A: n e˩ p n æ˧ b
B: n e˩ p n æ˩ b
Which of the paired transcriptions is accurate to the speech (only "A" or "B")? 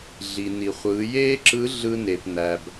B